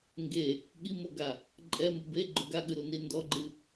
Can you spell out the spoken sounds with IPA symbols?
ŋ ɡ e | ɠ i m o ɡ a | ǃʼ ɛ m u b e ɡ͡ǃ o ɡ a ɠ ɨ ɾ u n i n d ɔ ɡ͡ǃ ɨ

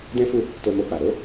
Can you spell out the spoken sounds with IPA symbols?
d ɛ̃˦ f u˦˨ | t o˧ m o˧ k͡p a˨ ɾ o˨˦

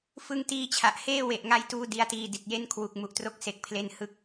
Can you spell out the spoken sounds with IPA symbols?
f ɯ˧ ŋ t iː˧ t͡ɕʰ a˨˩ ʔ h eː˥˩ w e˨˩ ʔ ŋ a˧ j t uː˧ d i˦˥ a̯ t iː˧ d i˨˩ t̚ j e˦˥ n kʰ w u˨˩ k̚ m u˦˥ ʔ t r o˥˩ k̚ s e˦˥ k̚ pʰ l e˥˩ n h ɯ˦˥ k̚

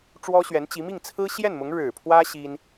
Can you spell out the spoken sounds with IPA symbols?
ʈ͡ʂ w ɔ˥ ɕ ɥ ɛ˧˥ n t͡ɕ i˧˥ m i˥˩ ŋ t͡sʰ ɹ̩˥ ɕ j ɛ˥˩ n m ʊ˧˥ ŋ ɻ ɻ̩˨˩ pʰ w ä˥ ɕ i˥ n

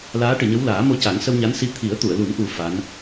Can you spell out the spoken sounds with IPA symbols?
l aː˧˥ ʈ ɨ˨˩˨ ɲ ə˧˥ w l aː˨˩˦ m o˧ c a˨˩˦ ŋ s ə˧ w ɲ a˧˥ n s i˧˥ t̪ʰ i˨˩˦ ə̯ t̪ u˨˩˨ ə̯ l u˨˩˦ n ʔ u˨˩ f a˧˥ n

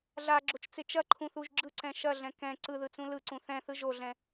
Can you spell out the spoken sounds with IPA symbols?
ɮ a ɡ͡ǁ o t͡ʃ t͡s ɪ t͡ʃ ɐ ǃʰ ũ θ u ʒ ɡ͡ǁ ɯ ǀ ɛ̃ ʃ ɐ ɮ ɛ̃ k ɛ̃ ǀ ɯ ð ɯ t͡s ũ l ɯ ǀ ũ θ ɛ̃ θ ɯ ʒ o ɮ ɛ̃

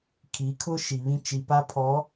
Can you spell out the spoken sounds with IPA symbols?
kʰ i˨˦ kʰ ʊ˦ ʃ i˨ β ĩ˦ t͡ʃ i˨ p a˦ pʰ ɔ˨˦

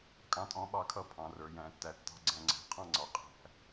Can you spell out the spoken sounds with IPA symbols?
kʼ ɑ̃˦ tʼ ɔ̃˦ ɓ ɑ˦ kʰ ʌ˦ pʰ ɑ̃˨ r ə˞˨ j æ̃˨˦ tː æ˧ tː ɑ̤˧ ɡ͡ǀ æ̃˧ ŋ͡ǀ æ̤˨˦ qʰ ɑ̃˦ ŋ͡ǀ ɑ˨ qʼ æ̤˧

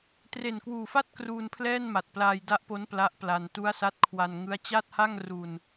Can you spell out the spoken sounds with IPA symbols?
t r e˨˩ n k w uː˨˩ f a˥˩ t̚ k r uː˧ n pʰ l ɛː˥˩ n m a˨˩ t̚ p l aː˧ j d a˦˥ ʔ p o˦˥ n p l a˦˥ ʔ p l a˧ n t u˦˥ a̯ s a˦˥ t̚ kʰ w a˧ n ŋ ɯ˦˥ a̯ t͡ɕ a˥˩ t̚ h a˥˩ ŋ r u˧ n

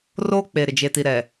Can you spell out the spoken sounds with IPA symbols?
r oː˦ k͡p e˨ ɾ ɪ˨ d͡ʒ e˨ t i˨ ɾ ɛ˨

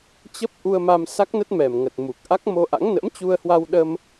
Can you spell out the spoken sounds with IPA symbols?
t͡ɕ ə˦˥ p̚ ʔ u˧ ə̯ m a˧ m s a˦˥ k̚ n ə˦˥ t̚ m ɛ˨˩ m ŋ ə˨˩ t̚ m u˨˩ k̚ ʔ a˦˥ k̚ m o˧ ʔ a̰˧˥ ŋ n ə̰˧˥ m t͡ɕ u˧ ə̯ h w a˧ w ɗ ə˧ m

